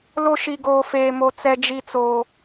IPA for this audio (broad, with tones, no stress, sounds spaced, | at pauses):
l o˦ ʃ i˦ ɡ oː˦ f eː˦ m o˦ t͡s ɛ˦ d͡ʒ i˦ t͡s oː˦